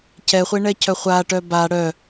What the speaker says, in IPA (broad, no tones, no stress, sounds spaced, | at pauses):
cʰ ɛ χʷ e ɳ ɛ cʰ œ χʷ a ʈ œ b a ɽ œ